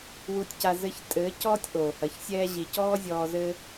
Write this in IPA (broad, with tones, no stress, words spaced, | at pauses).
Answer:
wu˧tʲca˧ zɘ˧çtʼɘː˨˦cɔ˦tʲ ʔoː˨hɐ˨˦ç sʲɛː˧ʑi˨ cɔː˦zʲɔː˧ zɘː˧